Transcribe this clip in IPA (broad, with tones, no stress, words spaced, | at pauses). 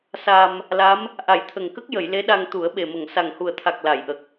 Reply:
sa˧m | la˧˥m | ʔa˨˩˦jt̪ʰə˨˩ŋkə˦˥k̚ jə˨˩˨j le˧˥ɗa˧ŋt̪u˨˩˦ə̯ ɓe˨˩mə˨˩˨ŋ sa˨˩ŋhu˨˩ə̯t̪ʰa˨˩k̚ la˨˩˨jʔə˨˩k̚